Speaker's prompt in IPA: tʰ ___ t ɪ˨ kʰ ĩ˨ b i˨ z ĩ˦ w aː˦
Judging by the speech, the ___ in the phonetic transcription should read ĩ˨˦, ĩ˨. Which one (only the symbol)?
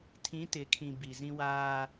ĩ˨˦